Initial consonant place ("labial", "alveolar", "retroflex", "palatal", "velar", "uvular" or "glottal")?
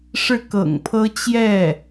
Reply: retroflex